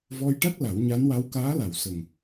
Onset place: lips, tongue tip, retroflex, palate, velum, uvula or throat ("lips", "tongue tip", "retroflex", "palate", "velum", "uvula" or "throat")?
lips